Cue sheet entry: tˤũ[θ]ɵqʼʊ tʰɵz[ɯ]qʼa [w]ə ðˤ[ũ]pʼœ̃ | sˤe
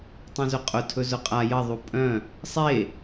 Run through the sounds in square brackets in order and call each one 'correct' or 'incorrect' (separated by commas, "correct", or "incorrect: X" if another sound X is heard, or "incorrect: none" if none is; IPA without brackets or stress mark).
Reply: incorrect: z, incorrect: ʊ, incorrect: j, incorrect: u